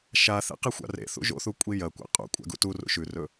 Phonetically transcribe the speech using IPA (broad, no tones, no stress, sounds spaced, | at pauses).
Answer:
ʃ a θ ḛ q i xʷ a̰ r ḛ θ ṵ ʒ o̰ θ u kʷʼ i j ɐ kʷ a̰ qʼ ṵ kʷʼ a̰ ɡ ṵ t u r ṵ ʃ ʉ r ɵ